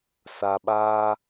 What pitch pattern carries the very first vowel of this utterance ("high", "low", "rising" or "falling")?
low